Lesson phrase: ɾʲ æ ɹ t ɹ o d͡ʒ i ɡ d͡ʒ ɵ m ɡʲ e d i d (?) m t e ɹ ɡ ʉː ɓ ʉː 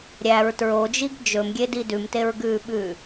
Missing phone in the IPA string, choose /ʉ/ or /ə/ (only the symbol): ʉ